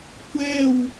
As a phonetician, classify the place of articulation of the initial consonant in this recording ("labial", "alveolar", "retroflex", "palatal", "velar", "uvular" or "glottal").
velar